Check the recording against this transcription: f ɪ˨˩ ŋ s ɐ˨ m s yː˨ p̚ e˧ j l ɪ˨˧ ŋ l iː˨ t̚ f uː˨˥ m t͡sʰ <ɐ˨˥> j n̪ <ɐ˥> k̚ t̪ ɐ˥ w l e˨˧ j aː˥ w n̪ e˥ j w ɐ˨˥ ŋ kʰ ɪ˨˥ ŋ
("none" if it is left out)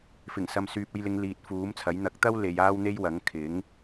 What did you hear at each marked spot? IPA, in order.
ɐ˨˥, ɐ˨˥

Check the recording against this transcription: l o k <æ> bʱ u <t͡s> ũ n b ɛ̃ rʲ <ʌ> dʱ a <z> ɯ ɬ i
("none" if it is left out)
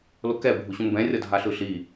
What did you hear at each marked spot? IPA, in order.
ɛ, ɕ, ʌ, ɬ

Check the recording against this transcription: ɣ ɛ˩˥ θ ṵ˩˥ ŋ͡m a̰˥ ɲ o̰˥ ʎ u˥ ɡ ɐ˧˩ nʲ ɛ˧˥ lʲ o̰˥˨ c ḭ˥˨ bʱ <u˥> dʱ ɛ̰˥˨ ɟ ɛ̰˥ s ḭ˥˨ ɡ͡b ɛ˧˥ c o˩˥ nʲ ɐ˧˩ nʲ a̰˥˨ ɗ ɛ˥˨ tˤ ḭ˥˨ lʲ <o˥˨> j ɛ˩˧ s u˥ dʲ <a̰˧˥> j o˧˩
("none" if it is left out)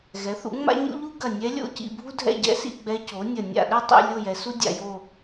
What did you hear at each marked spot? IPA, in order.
u˥, o˥˨, a̰˧˩

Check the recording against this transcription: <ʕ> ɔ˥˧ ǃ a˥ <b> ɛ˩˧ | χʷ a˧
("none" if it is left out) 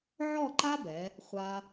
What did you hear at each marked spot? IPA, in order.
ʕ, b

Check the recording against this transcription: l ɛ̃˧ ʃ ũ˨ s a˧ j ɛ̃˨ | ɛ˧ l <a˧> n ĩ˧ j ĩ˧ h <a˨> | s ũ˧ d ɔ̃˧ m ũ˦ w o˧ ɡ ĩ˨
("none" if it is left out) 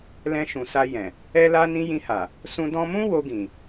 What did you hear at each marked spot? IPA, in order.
a˧, a˨

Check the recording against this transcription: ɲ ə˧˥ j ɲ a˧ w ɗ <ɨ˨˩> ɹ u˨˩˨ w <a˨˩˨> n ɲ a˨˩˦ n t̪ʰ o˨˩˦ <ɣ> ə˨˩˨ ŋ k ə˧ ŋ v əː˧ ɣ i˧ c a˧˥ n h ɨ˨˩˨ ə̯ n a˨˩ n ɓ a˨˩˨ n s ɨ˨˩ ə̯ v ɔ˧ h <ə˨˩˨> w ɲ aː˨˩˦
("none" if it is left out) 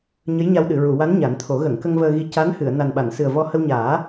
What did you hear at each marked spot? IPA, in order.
ɨ˨˩˨, a˧˥, ɣ, ə˧

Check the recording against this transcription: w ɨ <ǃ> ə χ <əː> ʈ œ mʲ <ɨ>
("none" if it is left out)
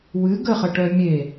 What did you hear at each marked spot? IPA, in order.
ɡ, ə, e

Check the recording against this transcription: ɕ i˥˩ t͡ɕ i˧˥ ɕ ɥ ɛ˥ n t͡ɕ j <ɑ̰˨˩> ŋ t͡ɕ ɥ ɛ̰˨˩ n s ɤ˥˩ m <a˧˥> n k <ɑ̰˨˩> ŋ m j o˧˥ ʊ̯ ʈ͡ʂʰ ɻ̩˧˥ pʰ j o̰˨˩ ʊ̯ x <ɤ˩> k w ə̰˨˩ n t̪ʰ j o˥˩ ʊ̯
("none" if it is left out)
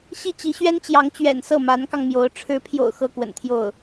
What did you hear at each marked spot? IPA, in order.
ɑ˧˥, a˧˥, ɑ˧, ɤ˥

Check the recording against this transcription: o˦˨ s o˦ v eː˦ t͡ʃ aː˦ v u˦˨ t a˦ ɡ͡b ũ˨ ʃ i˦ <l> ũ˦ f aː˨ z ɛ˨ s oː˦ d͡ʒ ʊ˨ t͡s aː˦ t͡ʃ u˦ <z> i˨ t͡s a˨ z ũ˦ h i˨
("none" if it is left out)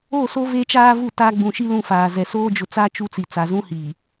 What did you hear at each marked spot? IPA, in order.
l, t͡s

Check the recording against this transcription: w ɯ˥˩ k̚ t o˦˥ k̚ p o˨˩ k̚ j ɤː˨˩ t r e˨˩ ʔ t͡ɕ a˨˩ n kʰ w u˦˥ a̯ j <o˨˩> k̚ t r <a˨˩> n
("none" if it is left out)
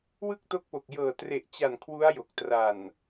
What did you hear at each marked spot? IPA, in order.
o˨˩, a˨˩

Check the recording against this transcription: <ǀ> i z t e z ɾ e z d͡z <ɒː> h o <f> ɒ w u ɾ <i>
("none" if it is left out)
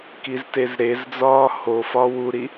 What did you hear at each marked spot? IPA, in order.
k, ɒː, f, i

